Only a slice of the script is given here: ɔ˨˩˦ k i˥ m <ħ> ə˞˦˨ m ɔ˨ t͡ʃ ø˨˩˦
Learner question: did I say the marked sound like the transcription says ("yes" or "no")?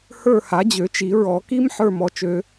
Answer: yes